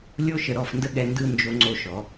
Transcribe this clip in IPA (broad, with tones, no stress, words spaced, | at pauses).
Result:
lʲo˥ʃə˧ ɾɔ˥˧fndə˥ ɠɛ˧ ndɯ˥˧ nd͡ʒo˧ŋ͡ǀo˧ʃɔ˩˧